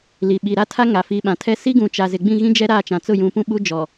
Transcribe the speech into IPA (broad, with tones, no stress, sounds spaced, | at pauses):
l i˨ ɓ i˨ ɾ a˦ tʰ a˦ ŋ a˨ f i˨ ɓ ã˨ tʰ ɛ˦ s i˦ ɡ ũ˨ t͡ʃ a˨ z ɪ˨ ɡ͡b ĩ˦˨ ɣ ĩ˦ d͡ʒ ɛ˦ ɾ a˦˨ t͡ʃ ã˨ t͡s ʊ˦˨ j ũ˨ p ũ˦ ɓ u˦ d͡ʒ ɔ˨